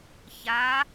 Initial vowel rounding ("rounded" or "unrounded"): unrounded